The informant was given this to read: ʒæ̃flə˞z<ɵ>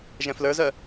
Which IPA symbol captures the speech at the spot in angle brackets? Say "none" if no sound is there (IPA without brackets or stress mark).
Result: œ